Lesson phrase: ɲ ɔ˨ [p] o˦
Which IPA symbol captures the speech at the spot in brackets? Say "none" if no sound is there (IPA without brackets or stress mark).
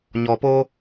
p